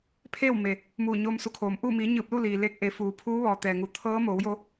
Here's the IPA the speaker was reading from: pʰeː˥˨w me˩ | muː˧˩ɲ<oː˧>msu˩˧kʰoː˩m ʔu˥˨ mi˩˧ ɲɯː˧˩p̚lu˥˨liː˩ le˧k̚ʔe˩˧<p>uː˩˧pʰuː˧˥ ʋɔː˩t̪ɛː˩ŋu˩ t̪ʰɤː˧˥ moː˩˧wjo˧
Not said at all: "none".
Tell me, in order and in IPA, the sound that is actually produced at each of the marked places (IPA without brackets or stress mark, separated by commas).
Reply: oː˧, f